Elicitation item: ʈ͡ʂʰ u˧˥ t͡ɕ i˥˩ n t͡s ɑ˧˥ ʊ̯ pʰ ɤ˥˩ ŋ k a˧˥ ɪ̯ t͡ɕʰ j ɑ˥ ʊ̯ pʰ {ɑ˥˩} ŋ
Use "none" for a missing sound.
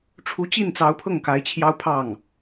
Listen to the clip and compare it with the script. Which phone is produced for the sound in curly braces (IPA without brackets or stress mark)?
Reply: ɑ˥˩